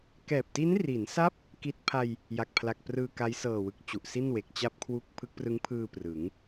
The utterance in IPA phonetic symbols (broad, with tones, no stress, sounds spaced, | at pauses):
k ɛː˨˩ p̚ t i˦˥ n r i˩˦ n s a˦˥ p̚ | k i˦˥ t̚ pʰ a˧ j | j a˨˩ k̚ pʰ l a˨˩ k̚ p r ɯː˧ k a˦˥ j s ɤː˨˩ w ɯ˨˩ k̚ t͡ɕ u˨˩ ʔ s i˥˩ n w e˨˩ k̚ t͡ɕ a˥˩ p̚ kʰ w u˥˩ k̚ pʰ ɯ˦˥ k̚ p r ɯ˦˥ ŋ pʰ ɯː˧ p r ɯ˩˦ ŋ